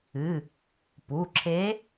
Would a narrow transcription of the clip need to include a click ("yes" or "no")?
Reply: yes